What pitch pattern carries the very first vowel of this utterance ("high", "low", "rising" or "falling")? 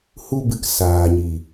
high